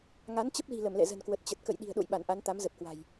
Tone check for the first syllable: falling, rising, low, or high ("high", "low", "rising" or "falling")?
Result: rising